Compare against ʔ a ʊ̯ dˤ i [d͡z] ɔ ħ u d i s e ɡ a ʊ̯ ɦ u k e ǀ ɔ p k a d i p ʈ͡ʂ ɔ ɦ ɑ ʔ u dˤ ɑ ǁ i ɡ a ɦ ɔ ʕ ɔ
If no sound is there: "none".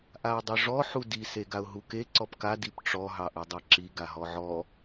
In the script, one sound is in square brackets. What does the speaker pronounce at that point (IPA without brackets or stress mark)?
ʐ